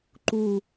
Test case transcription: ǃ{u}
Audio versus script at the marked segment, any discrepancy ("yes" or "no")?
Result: no